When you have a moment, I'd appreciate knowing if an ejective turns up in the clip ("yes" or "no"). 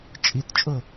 yes